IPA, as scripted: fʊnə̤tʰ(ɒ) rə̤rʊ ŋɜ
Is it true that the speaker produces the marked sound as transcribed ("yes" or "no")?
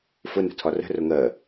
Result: yes